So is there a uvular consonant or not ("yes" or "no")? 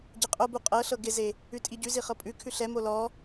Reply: yes